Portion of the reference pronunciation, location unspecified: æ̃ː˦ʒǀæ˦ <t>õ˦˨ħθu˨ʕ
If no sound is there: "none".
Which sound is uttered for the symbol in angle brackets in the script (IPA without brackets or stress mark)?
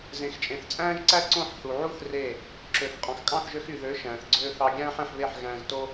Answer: ǀ